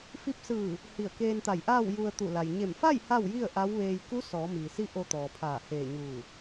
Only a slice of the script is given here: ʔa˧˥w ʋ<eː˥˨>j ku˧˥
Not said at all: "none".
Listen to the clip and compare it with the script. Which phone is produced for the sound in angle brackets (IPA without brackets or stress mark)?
eː˧